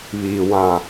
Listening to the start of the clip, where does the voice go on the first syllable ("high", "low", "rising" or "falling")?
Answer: low